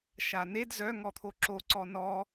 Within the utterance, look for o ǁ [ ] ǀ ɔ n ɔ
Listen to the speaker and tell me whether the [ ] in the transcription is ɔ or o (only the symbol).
o